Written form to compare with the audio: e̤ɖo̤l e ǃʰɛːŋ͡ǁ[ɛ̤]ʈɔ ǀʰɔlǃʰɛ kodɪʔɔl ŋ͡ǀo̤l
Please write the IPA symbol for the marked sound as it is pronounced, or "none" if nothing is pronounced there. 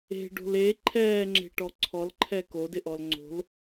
e̤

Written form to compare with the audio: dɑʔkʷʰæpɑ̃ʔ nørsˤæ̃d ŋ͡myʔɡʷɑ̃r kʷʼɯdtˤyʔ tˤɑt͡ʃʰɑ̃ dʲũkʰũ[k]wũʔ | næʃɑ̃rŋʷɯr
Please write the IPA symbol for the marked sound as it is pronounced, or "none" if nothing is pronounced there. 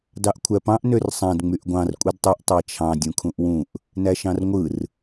ʔ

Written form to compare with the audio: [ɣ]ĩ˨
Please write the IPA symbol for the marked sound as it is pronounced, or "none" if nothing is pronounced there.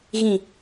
ɣ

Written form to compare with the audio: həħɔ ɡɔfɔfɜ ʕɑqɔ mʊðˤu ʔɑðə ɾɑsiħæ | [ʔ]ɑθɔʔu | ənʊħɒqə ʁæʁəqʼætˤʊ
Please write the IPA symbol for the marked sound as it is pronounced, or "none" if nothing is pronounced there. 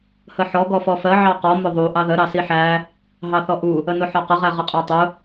ɦ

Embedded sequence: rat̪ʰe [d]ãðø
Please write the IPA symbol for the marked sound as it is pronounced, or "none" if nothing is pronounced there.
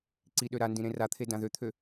d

